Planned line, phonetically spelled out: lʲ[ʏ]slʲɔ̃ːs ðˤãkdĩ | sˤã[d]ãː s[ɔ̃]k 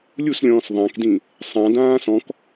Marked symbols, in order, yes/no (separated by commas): no, yes, yes